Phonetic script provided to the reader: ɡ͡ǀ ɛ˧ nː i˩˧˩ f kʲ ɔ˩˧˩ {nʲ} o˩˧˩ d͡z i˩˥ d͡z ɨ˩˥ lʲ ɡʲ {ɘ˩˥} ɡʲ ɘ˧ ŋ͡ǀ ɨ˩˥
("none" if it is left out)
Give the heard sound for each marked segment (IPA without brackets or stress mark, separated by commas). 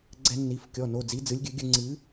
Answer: n, ɘ˩˥